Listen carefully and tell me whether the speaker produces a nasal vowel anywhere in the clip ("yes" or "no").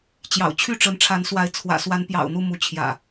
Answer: no